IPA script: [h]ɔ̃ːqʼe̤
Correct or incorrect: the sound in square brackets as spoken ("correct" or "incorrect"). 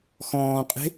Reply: incorrect